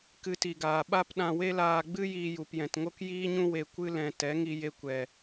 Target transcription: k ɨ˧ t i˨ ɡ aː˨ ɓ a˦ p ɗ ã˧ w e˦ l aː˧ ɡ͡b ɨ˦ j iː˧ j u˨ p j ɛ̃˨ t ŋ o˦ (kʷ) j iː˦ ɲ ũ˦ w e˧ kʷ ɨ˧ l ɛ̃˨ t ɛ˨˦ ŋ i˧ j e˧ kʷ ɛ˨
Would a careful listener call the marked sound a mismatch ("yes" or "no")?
yes